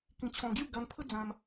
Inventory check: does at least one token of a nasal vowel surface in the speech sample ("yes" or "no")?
yes